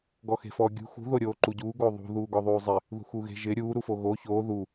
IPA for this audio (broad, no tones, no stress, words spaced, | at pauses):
ɡɔxe̤fɔ ɡʲṳ xṳ ðoɾʲoːǃuɟuː ɡoðˤṳ ðuːɡɔðˤuːzˤɪ | ðṳxuːɣe̤ ʒɪ ɾʲuː ɾufoɣo çoː ðu